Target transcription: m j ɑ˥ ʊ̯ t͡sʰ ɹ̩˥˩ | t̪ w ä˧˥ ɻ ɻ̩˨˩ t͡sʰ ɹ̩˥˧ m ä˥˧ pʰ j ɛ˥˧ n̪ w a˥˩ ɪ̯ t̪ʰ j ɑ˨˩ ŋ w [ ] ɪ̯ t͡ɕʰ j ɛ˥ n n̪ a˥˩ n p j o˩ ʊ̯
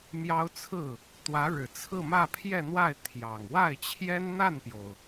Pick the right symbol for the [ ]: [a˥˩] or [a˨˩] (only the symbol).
a˥˩